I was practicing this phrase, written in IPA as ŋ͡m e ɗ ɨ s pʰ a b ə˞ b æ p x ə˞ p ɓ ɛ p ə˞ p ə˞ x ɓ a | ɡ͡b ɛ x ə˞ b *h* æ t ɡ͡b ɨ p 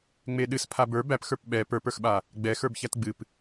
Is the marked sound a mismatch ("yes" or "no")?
yes